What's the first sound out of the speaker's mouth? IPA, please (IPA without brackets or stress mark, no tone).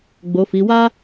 ɡ͡b